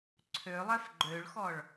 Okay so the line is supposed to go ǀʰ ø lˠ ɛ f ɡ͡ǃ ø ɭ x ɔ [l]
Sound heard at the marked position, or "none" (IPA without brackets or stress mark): ɭ